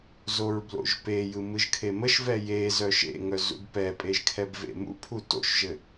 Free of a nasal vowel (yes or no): yes